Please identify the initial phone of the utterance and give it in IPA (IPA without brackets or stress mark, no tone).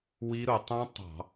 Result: w